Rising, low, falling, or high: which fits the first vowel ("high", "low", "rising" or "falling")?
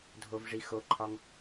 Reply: low